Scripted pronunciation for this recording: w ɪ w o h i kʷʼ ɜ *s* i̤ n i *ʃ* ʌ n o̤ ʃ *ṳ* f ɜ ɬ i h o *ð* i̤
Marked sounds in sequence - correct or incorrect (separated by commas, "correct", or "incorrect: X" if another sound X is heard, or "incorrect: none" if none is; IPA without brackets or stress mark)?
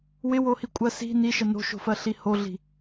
correct, correct, incorrect: o̤, incorrect: ɮ